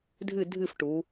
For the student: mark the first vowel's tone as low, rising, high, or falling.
falling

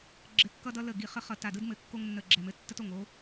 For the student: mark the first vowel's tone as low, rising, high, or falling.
rising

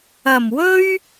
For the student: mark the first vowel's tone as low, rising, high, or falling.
low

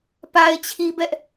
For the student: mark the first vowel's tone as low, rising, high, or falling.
high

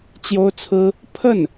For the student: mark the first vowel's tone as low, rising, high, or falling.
high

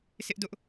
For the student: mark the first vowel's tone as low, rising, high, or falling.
high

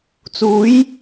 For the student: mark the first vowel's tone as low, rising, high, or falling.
rising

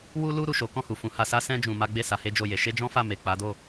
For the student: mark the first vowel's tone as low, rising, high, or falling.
high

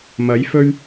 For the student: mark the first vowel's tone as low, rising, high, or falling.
rising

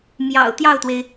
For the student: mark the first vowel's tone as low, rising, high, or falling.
low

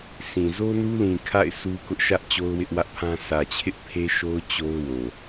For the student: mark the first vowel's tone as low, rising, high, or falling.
low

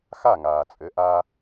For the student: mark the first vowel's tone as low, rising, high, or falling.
falling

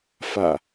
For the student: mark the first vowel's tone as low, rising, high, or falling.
low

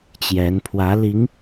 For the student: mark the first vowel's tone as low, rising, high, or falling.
rising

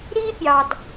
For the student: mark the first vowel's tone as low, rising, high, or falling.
high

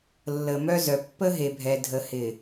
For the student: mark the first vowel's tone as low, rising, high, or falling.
low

